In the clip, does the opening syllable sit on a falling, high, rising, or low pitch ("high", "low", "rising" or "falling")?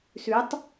rising